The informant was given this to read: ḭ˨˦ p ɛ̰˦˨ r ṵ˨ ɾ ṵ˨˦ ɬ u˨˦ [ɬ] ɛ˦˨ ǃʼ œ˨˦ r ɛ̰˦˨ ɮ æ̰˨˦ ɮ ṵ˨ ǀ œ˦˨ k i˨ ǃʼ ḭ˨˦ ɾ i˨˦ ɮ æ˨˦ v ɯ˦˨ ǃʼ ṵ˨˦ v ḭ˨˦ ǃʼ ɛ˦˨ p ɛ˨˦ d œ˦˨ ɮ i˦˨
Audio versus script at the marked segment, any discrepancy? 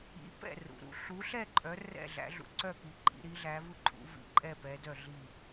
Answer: no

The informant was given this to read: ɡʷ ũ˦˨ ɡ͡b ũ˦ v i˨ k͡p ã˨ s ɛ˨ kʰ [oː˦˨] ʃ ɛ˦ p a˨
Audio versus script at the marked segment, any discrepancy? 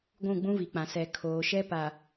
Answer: yes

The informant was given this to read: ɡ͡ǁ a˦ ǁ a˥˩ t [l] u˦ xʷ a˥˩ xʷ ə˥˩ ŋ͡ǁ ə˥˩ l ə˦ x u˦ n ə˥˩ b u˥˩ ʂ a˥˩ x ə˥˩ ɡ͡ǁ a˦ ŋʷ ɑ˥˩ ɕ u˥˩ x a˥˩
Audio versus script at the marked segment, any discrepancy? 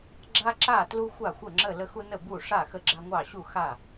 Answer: no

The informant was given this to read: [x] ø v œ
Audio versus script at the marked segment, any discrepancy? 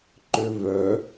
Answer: yes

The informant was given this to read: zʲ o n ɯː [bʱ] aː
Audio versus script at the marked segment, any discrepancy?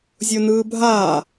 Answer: no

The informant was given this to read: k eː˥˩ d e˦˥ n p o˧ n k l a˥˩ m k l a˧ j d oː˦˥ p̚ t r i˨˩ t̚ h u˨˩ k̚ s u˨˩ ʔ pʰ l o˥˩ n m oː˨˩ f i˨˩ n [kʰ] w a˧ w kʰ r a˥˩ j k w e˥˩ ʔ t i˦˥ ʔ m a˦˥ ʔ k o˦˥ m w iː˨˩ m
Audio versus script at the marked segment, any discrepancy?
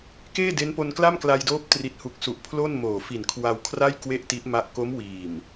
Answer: no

